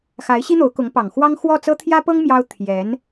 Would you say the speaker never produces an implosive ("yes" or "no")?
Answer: yes